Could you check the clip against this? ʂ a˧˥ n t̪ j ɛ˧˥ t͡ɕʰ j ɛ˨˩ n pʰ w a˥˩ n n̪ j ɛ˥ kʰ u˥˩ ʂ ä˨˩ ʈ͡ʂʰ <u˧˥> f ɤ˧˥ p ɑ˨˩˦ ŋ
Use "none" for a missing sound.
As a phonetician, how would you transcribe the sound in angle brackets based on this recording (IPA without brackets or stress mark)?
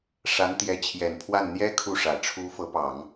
u˧˥